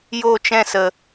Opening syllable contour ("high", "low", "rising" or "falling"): falling